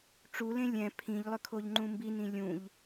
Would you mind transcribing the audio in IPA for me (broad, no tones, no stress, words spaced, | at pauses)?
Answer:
ʈ͡ʂulẽ lʲɛ̃ pʰĩʎlˠʏkʰoʎŋ͡ǃũ mbinĩ lʲũʎ